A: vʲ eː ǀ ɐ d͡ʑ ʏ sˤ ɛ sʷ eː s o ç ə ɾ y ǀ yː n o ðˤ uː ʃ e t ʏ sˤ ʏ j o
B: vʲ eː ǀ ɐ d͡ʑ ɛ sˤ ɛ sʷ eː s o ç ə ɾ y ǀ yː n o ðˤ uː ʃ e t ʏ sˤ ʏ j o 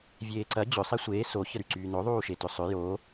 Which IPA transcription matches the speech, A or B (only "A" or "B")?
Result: A